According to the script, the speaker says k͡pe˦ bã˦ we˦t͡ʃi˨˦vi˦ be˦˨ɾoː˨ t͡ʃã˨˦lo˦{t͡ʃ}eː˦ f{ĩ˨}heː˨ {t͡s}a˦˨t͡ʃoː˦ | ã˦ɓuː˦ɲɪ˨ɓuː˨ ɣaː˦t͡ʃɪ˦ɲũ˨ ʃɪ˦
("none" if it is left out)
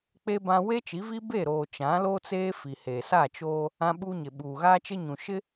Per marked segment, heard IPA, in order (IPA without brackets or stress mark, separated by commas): t͡s, i˨, s